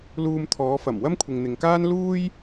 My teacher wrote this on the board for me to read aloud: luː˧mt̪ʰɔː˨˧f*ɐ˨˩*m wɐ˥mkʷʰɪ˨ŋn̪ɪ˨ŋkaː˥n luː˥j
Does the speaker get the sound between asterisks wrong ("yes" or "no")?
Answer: no